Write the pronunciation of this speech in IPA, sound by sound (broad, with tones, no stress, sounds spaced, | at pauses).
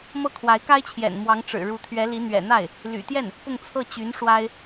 m ɤ˥˩ kʰ w a˧˥ ɪ̯ k a˥ ɪ̯ t͡ɕʰ j ɛ̰˨˩ n m w ɑ˧˥ ŋ ʈ͡ʂ ɻ̩˨˩ ɻ u˧˥ t̪ʰ ɥ ɛ˧˥ l i˧˥ n̪ ɥ ɛ̰˨˩ n̪ a˥˩ ɪ̯ | l y̰˨˩ t̪ j ɛ˥˩ n | p ʊ˥˧ ŋ t͡sʰ ɤ˥˩ t͡ɕ y˧˥ n ʂ w a˥ ɪ̯